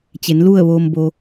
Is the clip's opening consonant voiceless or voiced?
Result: voiceless